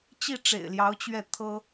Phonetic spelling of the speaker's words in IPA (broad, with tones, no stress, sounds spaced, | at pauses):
t͡ɕ i˥˩ ʈ͡ʂ ḛ˨˩ ɪ̯ l j ɑ˧˥ ʊ̯ t͡ɕ ɥ ɛ˥˩ t̪ʰ ɤ˥